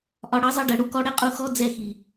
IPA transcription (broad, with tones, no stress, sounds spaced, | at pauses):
ʔ ɒ˨ ɽ ʌ˨˦ zˤ ʌ˧ ɖ ɜ˨ ɽ u˧ k ɔ˧ ɽ ɛ˦ qʼ u˧ x ɔ˦ d͡z ɛ˦˨ x i˨